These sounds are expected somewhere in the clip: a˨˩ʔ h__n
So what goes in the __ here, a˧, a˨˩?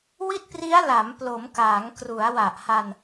a˧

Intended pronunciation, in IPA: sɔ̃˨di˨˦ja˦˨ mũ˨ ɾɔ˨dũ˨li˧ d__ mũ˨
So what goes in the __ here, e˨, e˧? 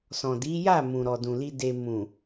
e˨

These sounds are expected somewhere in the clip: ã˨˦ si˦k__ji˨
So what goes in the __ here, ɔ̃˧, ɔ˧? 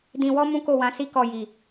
ɔ˧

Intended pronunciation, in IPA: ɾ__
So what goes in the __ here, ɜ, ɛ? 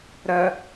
ɜ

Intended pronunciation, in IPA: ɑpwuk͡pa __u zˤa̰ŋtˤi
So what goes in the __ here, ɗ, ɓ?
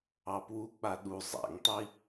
ɗ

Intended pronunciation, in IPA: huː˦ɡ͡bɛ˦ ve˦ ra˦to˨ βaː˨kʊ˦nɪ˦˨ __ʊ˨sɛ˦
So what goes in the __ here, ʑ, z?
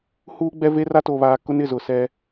z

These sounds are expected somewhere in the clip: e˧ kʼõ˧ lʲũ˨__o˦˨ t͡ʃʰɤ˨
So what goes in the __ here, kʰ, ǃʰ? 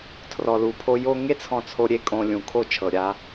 kʰ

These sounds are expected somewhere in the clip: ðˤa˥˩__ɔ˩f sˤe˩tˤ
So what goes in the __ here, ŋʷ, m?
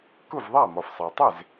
m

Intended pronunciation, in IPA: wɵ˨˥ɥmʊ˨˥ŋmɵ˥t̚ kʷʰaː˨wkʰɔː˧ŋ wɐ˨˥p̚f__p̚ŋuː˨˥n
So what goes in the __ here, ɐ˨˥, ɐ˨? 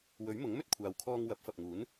ɐ˨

